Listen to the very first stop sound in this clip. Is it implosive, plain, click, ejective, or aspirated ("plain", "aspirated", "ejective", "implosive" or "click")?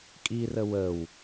ejective